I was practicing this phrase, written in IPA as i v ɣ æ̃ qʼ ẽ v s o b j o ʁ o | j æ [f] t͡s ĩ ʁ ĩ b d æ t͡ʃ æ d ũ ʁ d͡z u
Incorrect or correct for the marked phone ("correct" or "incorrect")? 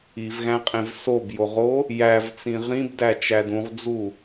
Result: incorrect